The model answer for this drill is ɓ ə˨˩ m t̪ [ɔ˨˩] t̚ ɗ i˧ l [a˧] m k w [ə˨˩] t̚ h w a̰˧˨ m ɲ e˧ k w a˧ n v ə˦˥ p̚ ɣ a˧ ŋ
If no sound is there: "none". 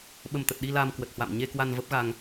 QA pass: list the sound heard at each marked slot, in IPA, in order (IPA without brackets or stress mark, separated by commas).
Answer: ə˨˩, a˧, ə˨˩